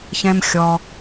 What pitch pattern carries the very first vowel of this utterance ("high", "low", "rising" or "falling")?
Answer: high